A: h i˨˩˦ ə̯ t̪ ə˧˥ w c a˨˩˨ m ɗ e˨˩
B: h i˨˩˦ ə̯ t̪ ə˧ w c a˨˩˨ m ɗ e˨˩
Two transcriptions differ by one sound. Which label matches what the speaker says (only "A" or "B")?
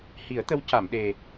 A